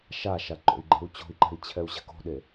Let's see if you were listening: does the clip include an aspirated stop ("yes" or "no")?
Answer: yes